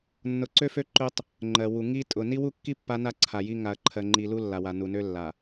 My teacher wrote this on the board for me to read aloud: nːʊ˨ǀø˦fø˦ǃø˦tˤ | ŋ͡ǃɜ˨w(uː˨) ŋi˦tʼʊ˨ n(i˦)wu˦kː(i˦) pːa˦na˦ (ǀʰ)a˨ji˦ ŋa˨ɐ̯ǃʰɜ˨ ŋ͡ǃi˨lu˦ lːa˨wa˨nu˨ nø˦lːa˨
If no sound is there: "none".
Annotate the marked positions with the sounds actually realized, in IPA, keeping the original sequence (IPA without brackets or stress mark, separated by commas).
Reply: u˨, i˦, i˦, ǀʰ